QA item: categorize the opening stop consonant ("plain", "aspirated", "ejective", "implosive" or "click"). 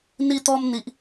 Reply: plain